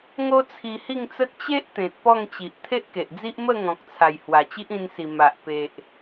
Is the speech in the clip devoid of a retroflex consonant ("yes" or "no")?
yes